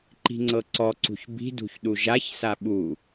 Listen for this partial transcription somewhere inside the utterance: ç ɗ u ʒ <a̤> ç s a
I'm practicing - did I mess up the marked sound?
yes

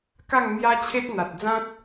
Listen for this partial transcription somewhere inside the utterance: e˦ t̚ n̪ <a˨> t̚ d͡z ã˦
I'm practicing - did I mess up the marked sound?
no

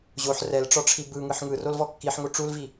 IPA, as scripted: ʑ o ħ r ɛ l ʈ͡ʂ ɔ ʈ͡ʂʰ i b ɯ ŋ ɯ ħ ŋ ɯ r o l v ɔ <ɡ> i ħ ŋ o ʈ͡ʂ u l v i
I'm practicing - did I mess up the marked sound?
yes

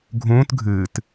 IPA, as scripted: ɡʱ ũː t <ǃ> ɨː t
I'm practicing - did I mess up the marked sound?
yes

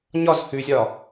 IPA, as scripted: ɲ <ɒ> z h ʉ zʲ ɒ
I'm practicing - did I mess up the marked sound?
no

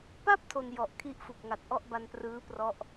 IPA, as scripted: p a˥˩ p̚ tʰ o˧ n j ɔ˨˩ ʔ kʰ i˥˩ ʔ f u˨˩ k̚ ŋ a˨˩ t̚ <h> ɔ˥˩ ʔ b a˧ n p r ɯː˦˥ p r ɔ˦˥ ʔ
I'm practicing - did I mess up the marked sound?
yes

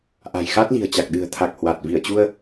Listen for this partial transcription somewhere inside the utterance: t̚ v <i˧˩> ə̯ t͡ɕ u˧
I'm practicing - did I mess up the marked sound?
no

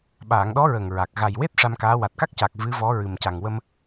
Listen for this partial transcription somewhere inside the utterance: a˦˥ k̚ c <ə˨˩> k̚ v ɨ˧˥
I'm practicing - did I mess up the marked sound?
yes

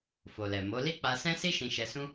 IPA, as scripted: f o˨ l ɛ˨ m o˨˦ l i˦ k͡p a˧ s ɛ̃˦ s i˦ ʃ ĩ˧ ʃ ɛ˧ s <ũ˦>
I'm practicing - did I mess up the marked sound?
no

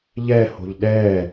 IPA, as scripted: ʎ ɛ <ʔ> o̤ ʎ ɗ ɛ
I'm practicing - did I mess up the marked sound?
yes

